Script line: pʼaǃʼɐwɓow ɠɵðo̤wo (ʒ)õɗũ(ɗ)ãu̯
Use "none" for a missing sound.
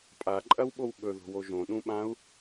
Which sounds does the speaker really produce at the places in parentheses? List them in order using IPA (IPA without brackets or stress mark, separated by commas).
ʒ, ɓ